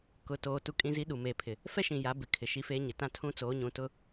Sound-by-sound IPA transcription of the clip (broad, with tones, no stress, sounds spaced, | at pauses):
k ʊ˨ t oː˨ t u˦ kʼ ĩ˦ z i˦ ɗ u˨ m eː˨ pʰ ɪ˨ | f ɛ˦ ʃ ĩ˨ j a˨˦ b ɪ˨ kʰ ɪ˨ ʃ i˦ f eː˦ ɲ ɪ˨ t ã˦ tʰ ũ˦ t͡s oː˨˦ ɲ ũ˨˦ t ʊ˦